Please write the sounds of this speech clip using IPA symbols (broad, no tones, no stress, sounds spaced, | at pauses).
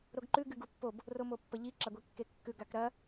ɾ o ɡ ǃ ʉ ɡ ɨ ɡ u pː o b | r o m o pː ɐ ʎ i ǁ a ɡʷ i kː e kː ʉ ɡ a k ɾ ɐ